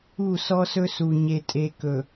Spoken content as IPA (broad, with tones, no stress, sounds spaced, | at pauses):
u˦˨ s ɔ˦ s ɵ˦ s u˨ ɲ e˨ tʼ e˨ k ɵ˨